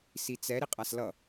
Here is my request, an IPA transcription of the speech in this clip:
s i t͡s ɛ ɾ i qʼ a s l ʌ

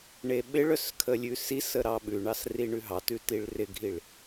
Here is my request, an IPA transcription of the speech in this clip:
ɳ e ɓ ɪ ɭ œ s kʰ ə lʲ ʉ s i s ə ɾ ɑ ɓ ʉ ɳ ɑ s r i ɳ ʉ ɦ ɑ t ʉ t i ɭ r ɪ ɡʱ i ɭ

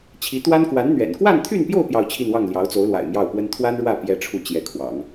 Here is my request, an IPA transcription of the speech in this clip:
t͡ɕʰ i˧˥ t̪ w a˥ n k w a˧˥ n n̪ ɥ ɛ̰˨˩ n k w a˥˧ n t̪ʰ y˥˧ n p j o˥˧ ʊ̯ p j ɑ˥˧ ʊ̯ t͡ɕʰ i˥˧ n w ɑ˥˩ ŋ l j ɑ˧˥ ʊ̯ t͡s o˧˥ ʊ̯ l w a̰˨˩ ɪ̯ m j ɑ˥˩ ʊ̯ p w ə˥ n t̪ʰ w a˥ n ɻ w ä˥˩ p j ɛ˥ ʈ͡ʂʰ u˥˩ t͡ɕ j ɛ˧˥ kʰ w ɑ̰˨˩˦ ŋ

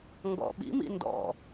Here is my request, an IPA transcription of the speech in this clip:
ŋ ɡ ɔ̰ ɓ ḭ m ḭ n d ɔ̰

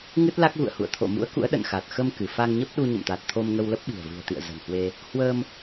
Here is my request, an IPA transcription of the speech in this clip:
ŋ ɨ˦˥ t̚ l a˦˥ k̚ ɣ ṵ˧˨ ə̯ h ṵ˧˨ ə̯ t̪ʰ o̰˧˨ m ṵ˧˥ ə̯ k ṵ˧˥ ə̯ ɗ ə̰˧˨ n x a˨˩ t̚ x ə˧ m k ɨ˧˩ f a˧ ŋ ɲ ə˦˥ p̚ ɗ u˧ ɲ ə̰˧˨ m t̪ a˨˩ t̚ t̪ʰ o˧ m ŋ ə˧ w l ə˦˥ p̚ ɓ i̤˨˩ ə̯ v ɨ̤˨˩ ə̯ t̪ ḭ˧˨ ə̯ z ə̤˨˩ n h w e˧ | h w əː˧ m

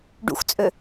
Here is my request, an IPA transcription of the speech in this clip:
ɖ ṵ x t͡sʼ ø

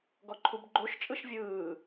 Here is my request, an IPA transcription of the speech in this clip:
ɡ ɔ ǃʰ u b ɡ͡ǃ o ʃ t͡ʃʼ ɯ ʃ vʲ ɯː

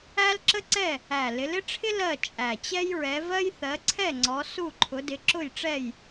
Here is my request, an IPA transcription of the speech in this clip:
æ˥ l ǁ ə˥ ǀ ɛ˥˨ | æ˨˩ l ɪ˨˦ l ɪ˥ ʈ͡ʂʰ ɪ˥ l ɜ˥˨ t͡ʃʼ æ˨˩ t͡ɕ ɛ˥ j ɹ ɛ˨˦ v ɜ˥ j θ ɜ˨˦ ǀʰ ɛ˥˨ ŋ͡ǀ ɔ˨˦ s u˥˨ ǃʰ ʊ˨˦ d ɪ˨˦ ǁ ʊ˥˨ j ʈ͡ʂ ɛ˥˨ j

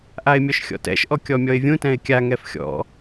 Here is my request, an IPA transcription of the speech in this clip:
ʔ a ɪ̯ mʲ ɔ ʃ xʲ ɔ̰ t ɛ̰ ʃ ʔ ɔ kʲ ɔ mʲ ɔ ɪ̯ vʲ ũ t ɛ̃ ɪ̯ kʲ a ŋ ɛ f xʲ ɔ̰

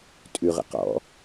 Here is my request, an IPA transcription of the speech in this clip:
tʼ ʉ ʁ ə̰ q ɔ̰

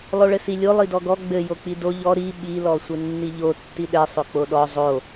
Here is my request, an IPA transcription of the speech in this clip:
lˠ o ɭ ɘ s i lʲ o lˠ i d ɔ ɡ ɔ ɡ͡b ɘ j o k͡p i d o ʎ ɔ ɾ i ɓ i l ɔ sʷ ɘ nː i ʎ o tː i ɗ ɛ sˤ o k͡p o ɗ ɔ zˤ o

